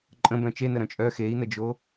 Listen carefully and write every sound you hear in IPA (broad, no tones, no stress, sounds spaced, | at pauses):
ǃʼ ə̃ b œ̃ t͡ʃ e n ə ɾ œ̃ t͡ʃʼ œ x e i̯ n ə d͡ʒ o